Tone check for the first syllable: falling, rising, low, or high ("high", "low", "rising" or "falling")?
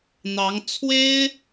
rising